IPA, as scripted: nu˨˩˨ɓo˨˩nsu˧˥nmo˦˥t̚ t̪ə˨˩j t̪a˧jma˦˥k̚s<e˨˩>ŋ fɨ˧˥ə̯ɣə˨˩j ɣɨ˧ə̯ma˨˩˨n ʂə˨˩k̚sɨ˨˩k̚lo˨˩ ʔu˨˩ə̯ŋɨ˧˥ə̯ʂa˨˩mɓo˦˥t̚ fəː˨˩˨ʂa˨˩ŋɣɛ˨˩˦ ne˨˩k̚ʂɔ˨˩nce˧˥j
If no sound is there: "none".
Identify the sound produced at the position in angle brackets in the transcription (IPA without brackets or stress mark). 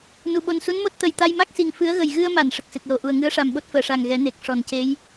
i˨˩